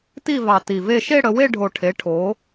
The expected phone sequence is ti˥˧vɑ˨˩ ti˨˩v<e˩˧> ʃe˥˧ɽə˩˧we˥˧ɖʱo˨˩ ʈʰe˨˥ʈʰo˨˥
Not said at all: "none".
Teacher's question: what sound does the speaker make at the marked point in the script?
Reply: e˥˧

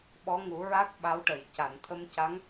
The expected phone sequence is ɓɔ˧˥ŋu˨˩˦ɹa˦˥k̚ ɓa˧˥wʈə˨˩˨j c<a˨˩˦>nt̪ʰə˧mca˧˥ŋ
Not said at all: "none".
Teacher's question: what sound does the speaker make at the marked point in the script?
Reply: a˨˩˨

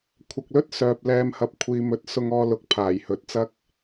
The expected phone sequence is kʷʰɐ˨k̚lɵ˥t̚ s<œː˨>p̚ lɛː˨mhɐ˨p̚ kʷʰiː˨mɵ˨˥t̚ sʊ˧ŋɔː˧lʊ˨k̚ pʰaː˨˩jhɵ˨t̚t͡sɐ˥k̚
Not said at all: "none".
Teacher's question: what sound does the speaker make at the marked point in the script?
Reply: œː˨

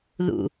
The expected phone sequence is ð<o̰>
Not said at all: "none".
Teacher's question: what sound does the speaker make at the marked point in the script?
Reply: ṵ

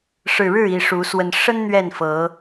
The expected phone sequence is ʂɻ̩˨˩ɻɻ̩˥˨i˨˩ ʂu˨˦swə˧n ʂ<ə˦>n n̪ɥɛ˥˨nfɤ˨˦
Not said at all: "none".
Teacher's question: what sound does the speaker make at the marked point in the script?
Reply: ə˦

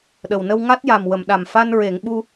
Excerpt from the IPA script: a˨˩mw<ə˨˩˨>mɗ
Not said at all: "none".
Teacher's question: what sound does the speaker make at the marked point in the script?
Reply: ə˨˩˨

